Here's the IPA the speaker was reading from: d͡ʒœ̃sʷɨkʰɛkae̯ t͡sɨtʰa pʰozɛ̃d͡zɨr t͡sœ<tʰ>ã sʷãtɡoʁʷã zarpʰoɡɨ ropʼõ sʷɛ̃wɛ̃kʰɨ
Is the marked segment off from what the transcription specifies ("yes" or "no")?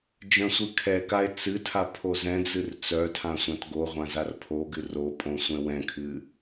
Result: no